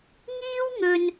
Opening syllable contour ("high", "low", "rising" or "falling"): high